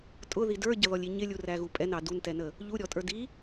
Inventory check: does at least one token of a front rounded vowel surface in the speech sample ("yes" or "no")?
no